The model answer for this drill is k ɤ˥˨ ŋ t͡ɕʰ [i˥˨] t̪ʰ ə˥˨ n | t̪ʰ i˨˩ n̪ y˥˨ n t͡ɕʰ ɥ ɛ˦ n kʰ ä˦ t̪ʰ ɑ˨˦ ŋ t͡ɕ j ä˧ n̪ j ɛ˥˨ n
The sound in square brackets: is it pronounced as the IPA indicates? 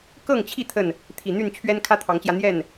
yes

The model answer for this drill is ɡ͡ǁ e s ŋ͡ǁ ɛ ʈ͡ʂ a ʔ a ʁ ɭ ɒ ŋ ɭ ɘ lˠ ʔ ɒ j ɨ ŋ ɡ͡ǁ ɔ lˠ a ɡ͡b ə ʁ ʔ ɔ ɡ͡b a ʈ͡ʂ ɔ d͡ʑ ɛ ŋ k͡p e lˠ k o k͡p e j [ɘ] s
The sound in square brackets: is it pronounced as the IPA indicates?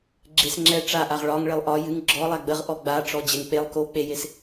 no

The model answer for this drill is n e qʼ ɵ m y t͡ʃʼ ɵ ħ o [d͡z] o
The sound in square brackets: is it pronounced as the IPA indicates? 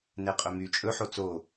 no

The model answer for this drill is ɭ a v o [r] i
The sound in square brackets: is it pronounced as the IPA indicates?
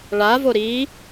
no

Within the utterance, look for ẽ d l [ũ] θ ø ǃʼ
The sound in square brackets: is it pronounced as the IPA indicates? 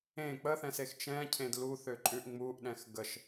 no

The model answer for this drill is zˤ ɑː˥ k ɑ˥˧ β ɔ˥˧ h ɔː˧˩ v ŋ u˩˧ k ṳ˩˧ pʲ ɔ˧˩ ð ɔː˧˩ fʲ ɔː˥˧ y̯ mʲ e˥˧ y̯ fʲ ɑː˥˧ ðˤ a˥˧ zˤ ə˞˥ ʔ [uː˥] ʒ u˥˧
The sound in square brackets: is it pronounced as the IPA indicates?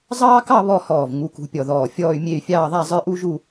no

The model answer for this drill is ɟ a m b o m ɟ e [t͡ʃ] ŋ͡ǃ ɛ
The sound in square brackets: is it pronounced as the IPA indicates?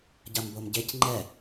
no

